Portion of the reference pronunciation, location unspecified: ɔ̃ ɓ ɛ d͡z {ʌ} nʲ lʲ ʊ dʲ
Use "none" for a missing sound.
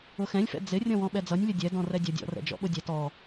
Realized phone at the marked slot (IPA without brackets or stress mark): ʌ